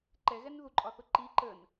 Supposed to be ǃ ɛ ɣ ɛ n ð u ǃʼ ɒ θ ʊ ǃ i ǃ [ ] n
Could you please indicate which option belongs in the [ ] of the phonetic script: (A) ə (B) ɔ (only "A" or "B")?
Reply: A